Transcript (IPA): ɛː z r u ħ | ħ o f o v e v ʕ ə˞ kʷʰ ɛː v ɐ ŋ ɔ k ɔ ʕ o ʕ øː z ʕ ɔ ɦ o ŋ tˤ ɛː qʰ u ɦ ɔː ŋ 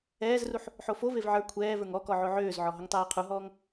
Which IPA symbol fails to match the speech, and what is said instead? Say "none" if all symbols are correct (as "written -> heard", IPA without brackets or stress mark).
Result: ɐ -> ə˞